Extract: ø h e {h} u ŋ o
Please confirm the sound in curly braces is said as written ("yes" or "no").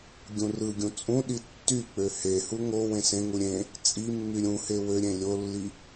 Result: yes